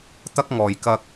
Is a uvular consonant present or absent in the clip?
absent